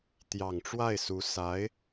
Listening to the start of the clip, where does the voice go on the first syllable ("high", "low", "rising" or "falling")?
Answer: low